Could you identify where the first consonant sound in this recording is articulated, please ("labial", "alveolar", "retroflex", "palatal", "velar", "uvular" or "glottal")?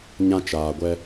palatal